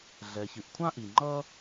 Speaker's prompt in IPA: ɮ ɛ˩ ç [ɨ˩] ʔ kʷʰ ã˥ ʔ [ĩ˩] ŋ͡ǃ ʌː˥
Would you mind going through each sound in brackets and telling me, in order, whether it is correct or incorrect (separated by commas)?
correct, incorrect